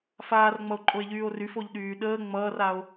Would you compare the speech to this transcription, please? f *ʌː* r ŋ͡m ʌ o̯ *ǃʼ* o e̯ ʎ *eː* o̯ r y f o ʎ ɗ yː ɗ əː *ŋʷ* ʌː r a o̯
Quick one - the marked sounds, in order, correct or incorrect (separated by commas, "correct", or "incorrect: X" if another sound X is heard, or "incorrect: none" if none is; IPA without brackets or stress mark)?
incorrect: aː, correct, incorrect: yː, incorrect: ŋ͡m